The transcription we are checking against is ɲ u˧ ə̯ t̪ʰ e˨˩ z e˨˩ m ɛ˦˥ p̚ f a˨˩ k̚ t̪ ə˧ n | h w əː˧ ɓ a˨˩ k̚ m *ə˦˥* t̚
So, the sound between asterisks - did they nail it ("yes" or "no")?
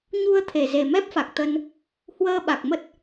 yes